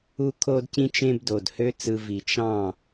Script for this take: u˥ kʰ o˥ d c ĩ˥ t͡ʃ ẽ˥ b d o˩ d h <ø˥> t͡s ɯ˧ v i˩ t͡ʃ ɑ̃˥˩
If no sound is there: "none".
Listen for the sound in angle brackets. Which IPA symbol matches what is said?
ø˥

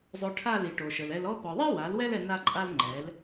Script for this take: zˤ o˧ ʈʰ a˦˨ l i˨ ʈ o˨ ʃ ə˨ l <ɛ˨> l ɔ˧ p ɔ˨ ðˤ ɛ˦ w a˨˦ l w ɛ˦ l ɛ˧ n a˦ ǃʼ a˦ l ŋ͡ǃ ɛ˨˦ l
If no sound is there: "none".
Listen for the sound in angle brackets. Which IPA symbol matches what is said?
ɛ˧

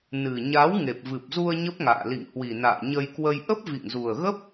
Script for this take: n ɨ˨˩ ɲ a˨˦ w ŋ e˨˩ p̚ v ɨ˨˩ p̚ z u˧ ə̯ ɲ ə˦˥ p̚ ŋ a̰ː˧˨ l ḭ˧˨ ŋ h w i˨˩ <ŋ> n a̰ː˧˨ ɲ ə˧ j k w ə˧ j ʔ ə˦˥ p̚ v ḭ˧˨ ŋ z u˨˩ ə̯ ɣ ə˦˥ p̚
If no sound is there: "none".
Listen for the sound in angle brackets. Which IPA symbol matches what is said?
none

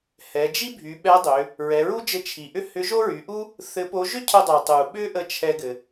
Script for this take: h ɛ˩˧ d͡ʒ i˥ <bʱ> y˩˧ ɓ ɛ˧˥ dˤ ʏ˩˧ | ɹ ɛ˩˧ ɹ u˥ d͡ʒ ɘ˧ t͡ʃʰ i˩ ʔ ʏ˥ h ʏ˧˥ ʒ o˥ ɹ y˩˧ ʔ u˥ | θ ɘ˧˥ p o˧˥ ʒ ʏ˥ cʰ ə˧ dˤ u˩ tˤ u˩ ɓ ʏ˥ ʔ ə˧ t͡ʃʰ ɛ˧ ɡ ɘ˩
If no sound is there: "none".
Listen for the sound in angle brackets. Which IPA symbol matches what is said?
bʱ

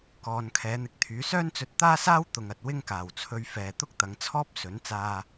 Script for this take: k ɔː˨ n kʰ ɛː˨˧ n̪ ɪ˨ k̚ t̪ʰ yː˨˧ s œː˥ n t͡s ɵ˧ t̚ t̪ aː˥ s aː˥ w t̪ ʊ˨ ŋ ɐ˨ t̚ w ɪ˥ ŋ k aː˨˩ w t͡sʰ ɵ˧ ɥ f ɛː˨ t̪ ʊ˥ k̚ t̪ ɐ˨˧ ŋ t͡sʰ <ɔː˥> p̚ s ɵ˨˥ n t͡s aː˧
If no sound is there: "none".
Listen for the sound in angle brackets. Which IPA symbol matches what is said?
ɔː˥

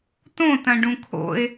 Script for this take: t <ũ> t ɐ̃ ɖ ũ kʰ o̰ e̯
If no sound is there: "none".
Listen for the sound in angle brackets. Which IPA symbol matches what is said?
õ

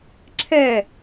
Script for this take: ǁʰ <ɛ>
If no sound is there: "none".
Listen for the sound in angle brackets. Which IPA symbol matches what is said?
ɛ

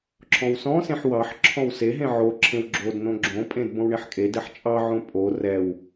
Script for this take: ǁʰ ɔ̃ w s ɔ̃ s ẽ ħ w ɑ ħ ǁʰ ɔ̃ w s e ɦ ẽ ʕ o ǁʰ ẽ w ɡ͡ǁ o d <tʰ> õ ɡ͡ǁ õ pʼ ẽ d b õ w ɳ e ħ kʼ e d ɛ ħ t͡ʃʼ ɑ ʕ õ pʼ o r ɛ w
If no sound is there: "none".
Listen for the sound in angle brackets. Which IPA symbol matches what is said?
n̪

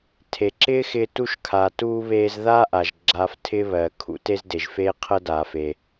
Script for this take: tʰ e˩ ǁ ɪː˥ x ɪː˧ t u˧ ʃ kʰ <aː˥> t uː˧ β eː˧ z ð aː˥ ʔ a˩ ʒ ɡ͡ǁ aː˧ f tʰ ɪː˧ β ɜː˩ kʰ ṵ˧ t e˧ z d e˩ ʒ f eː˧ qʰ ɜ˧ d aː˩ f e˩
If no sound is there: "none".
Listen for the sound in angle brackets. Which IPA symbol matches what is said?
aː˩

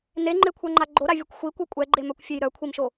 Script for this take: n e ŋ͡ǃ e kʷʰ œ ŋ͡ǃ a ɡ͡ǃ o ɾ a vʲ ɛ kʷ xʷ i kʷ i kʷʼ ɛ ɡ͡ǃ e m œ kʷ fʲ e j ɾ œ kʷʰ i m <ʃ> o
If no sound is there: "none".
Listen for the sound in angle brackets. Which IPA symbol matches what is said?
ʃ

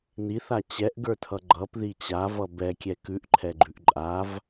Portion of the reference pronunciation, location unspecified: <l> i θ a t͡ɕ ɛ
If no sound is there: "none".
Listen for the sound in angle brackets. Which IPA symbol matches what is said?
n̪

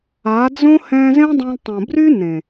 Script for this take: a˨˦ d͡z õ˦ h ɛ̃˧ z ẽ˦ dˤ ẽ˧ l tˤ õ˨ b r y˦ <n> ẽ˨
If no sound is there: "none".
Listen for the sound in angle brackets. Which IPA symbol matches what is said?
n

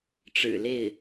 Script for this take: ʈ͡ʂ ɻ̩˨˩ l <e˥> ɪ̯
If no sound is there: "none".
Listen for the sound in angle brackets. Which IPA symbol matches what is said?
e˥˩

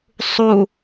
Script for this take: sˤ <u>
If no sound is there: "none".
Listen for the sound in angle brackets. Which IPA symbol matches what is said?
u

